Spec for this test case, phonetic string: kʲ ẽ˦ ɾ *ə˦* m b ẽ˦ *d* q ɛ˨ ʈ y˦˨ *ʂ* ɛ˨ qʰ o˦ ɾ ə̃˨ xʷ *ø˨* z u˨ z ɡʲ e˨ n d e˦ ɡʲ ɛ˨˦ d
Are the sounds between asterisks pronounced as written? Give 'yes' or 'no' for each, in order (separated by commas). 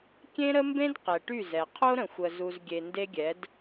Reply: yes, yes, no, no